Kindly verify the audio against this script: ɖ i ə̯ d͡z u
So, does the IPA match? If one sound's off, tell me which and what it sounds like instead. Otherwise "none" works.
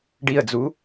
none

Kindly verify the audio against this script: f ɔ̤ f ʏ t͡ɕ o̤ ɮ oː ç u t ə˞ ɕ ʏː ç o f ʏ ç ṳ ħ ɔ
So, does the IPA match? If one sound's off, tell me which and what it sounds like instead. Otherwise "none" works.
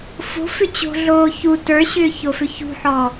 ɔ̤ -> o̤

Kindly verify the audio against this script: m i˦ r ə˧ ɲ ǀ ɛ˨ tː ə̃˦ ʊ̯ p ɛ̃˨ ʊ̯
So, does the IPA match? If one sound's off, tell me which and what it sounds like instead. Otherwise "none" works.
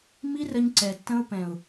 none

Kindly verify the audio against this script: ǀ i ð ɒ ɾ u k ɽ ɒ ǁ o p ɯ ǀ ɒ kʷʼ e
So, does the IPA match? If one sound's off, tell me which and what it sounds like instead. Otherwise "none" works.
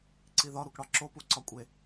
ɯ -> u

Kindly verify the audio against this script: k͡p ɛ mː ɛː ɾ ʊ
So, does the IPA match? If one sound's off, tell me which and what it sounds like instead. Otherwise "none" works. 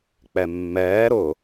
none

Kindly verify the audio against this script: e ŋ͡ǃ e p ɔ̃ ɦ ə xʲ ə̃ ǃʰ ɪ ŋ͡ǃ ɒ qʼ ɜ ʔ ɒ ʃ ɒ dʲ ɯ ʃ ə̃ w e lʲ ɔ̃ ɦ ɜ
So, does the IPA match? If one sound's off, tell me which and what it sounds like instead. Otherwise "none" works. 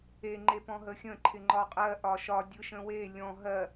none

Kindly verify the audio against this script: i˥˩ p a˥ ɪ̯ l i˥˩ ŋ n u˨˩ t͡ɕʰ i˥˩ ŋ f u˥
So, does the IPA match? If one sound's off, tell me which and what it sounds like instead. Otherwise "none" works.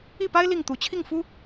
n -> t̪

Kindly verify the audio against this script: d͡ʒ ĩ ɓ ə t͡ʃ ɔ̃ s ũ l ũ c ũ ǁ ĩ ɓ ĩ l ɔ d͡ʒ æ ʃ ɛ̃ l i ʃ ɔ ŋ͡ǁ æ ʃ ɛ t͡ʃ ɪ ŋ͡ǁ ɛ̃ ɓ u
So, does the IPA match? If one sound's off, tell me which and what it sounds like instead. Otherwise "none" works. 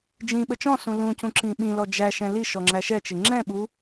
none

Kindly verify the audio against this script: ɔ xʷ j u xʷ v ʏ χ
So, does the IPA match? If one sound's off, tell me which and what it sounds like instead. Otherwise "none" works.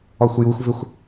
χ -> xʷ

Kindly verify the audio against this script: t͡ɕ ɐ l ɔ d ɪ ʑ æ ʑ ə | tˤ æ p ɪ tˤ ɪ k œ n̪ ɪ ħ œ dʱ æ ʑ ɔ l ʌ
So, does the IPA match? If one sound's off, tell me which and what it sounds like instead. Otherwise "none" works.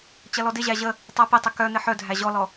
ʌ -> ɔ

